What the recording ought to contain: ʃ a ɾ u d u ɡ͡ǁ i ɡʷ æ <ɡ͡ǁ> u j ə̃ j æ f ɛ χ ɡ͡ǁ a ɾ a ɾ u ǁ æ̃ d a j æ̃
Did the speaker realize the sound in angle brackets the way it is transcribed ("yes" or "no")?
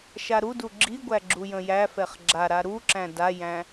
yes